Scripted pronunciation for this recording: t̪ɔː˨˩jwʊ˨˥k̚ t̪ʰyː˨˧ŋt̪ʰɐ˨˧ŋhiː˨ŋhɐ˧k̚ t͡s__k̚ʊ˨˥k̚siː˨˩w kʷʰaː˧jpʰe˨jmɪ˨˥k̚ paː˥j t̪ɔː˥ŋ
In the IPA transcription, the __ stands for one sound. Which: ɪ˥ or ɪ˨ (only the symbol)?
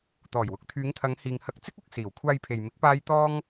ɪ˥